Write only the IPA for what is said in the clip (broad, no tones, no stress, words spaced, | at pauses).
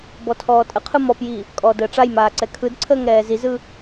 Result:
bɔtʰɔːtʼəqʰɯ mɔpji | kʼɔːdəːʈ͡ʂajmaː ǀɛkʰɯdǀʰəːŋ ɾɛːzizɯ